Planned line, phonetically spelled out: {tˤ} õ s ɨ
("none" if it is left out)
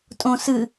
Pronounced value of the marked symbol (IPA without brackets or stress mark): tʼ